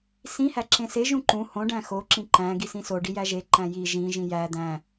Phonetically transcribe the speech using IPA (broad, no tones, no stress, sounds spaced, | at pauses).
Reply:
s ĩ h æ ǁ ẽ s e ʒ ũ ǃ ũ h õ ɖ æ̃ x o ǁ ĩ ǃ æ̃ ɡ i s ĩ s o ɖ i j æ ʒ e ǃ æ̃ j i ʒ ĩ ʒ ĩ j æ d̪ æ̃